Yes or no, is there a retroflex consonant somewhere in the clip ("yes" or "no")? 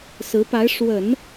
yes